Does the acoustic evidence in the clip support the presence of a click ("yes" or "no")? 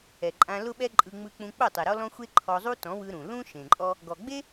yes